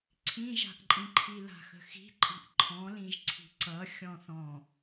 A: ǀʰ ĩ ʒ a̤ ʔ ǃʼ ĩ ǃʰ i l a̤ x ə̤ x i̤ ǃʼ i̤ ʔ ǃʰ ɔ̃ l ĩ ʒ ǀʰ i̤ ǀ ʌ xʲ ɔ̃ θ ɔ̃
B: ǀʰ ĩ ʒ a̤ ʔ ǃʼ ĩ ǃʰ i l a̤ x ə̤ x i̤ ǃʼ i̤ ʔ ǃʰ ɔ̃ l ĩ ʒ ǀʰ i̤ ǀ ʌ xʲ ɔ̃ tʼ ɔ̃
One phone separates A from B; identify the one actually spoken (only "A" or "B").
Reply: A